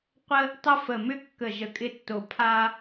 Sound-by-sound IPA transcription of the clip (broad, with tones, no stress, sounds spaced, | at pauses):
qʷ ə˧ | tˤ ə˧ f ə˨˩ m ʏ˧ kː ə˨˩ ʒ ə˨˩ kʼ ɪ˧ tː o˨˩ pʰ a˧